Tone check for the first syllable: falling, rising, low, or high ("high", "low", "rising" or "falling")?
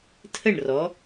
falling